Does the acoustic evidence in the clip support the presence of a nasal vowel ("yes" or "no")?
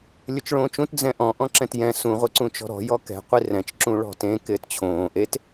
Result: yes